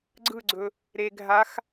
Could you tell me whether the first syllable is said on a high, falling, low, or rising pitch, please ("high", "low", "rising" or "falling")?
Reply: falling